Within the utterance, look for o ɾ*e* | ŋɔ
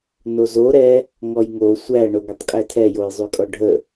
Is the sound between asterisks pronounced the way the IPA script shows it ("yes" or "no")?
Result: no